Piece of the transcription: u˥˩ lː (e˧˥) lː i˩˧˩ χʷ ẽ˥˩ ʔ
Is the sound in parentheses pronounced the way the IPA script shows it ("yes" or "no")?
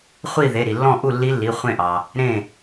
no